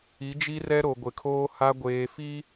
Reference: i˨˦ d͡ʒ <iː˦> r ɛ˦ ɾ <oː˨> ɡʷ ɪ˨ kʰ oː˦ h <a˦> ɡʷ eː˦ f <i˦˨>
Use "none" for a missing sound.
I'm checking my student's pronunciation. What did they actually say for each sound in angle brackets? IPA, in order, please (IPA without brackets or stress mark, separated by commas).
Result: i˦, o˨, a˦, i˦